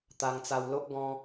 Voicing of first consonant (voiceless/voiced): voiceless